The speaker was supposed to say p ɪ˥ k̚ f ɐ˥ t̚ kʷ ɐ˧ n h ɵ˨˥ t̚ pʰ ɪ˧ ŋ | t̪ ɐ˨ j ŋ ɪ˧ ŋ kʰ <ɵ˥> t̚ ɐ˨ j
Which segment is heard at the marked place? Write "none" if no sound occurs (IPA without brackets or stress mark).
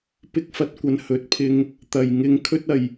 ɵ˥